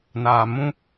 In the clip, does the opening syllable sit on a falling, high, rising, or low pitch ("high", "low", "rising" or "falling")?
low